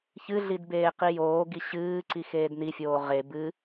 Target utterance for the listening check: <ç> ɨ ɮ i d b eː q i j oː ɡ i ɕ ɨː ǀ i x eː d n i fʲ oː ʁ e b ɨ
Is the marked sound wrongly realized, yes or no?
no